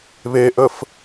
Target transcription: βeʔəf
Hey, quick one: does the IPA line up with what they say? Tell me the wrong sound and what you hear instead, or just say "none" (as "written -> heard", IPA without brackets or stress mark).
none